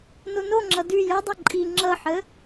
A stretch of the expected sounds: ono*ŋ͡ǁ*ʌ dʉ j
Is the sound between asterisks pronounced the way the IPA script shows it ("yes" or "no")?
yes